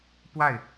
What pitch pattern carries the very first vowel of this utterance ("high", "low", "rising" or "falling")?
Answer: falling